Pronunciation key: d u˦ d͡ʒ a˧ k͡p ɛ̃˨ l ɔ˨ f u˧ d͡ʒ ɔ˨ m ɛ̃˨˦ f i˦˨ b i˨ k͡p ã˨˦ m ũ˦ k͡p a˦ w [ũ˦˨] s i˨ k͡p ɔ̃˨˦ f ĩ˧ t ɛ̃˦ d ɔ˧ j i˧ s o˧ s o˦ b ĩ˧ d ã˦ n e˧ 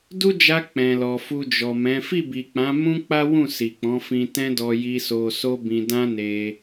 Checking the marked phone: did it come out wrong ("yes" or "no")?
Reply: no